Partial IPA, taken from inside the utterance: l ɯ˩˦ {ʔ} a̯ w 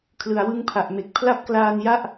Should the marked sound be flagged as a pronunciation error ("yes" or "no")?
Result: yes